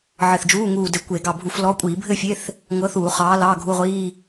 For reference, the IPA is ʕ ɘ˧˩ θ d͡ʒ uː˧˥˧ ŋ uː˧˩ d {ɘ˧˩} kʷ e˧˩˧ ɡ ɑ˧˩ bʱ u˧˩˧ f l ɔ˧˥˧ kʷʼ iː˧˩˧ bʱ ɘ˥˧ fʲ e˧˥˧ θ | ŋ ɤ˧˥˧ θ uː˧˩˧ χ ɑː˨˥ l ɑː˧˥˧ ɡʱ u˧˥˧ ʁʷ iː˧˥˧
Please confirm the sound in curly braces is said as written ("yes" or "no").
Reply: yes